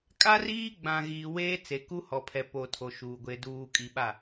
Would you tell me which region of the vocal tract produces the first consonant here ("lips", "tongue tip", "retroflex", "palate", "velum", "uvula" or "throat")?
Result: velum